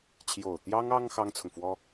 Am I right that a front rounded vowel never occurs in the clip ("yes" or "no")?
yes